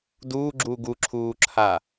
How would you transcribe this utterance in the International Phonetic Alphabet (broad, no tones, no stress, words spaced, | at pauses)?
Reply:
duːɡ͡ǁuːɡ uǁʰuːǁʰa